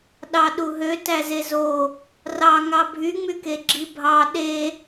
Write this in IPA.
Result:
ɗ ɑ ɗ u ɦ ø t æ z e z o | r ɑ ŋ ɑ bʱ y ŋ͡m y k e ɡ͡ǁ i bʱ ɑ ɗ e

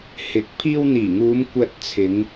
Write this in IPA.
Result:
h ɪ˨˥ k̚ pʰ iː˧ w n̪ iː˨˩ ŋ uː˨˧ m kʷ ɐ˧ t̚ t͡sʰ ɪ˨˧ ŋ

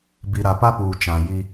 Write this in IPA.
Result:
b i˨ ɾ a˨ p a˦ p uː˨ t͡ʃ ã˨ j i˦

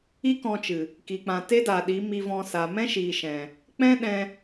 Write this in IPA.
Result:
i˦ k ɔ̃˧ t͡ʃ ɨ˨ | k i˨ k͡p ã˨ t e˦ d aː˨ ɗ i˨˦ m i˧ v ɔ̃˧ s a˨ m ɛ̃˦ ʃ iː˨ ʃ ɛ̃˨ | k͡p ɛ̃˦ ɗ ɛ̃˧

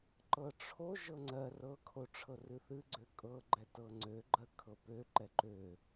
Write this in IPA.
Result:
ǃ ɤ ʈ͡ʂʰ o ʒ ɤ ŋ͡ǀ ɜ r ɤ kʰ o ʈ͡ʂʰ ɤ r ɨ θ ɨ ɡ͡ǀ ø kʼ ɤ ɡ͡ǃ ɛ t ɤ ŋ͡ǀ ø ɡ͡ǃ ɜ kʰ ɤ p ø ǃ ɛ ǃ ø

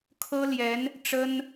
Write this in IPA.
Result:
kʰ ɤ˥ l j ɛ˧˥ n | ʈ͡ʂ ə˥ n

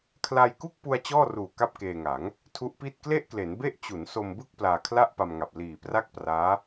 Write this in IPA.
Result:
kʰ l a˧ j k u˥˩ k̚ p u˧ a̯ t͡ɕ ɔː˥˩ r uː˨˩ k a˥˩ p̚ k eː˧ ŋ a˩˦ ŋ | tʰ u˦˥ ʔ p i˥˩ t̚ k l e˥˩ ʔ k l e˩˦ n b e˥˩ ʔ t͡ɕ u˩˦ n s o˧ m b ɯ˥˩ k̚ p l aː˧ kʰ l a˥˩ ʔ p a˧ m ŋ a˨˩ p̚ l iː˨˩ p r a˥˩ k̚ p r aː˦˥

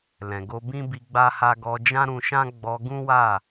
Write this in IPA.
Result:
l ɛ̃˨ ɡ o˧ b ĩ˦ b i˧ ɡ͡b a˦ h a˦ ɡ ɔ˧ d͡ʒ ã˦ ɾ ũ˧ ʃ ã˦ ɡ͡b ɔ˧ ɡ ũ˦ w a˦˨

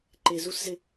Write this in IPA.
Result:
ǃ e˨ z u˧ s z ɪ˧

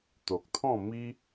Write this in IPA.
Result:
t̪ o˨ k̚ t̪ʰ ɔ̃˥˧ m i˦

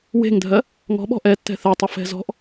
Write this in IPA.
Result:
w e̤ ŋ dʱ ɜ | ŋ ɔ̤ ɓ ɔ̤ ʔ ɛ tː ɛ̤ θ ɛ tˤ ɪ f ɛ̤ z ɔ̤ ʔ

